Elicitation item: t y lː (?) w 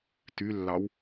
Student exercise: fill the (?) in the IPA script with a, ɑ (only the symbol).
ɑ